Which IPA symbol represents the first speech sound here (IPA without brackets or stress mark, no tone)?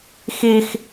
x